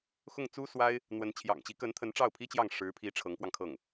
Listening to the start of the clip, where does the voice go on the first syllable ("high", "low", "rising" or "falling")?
falling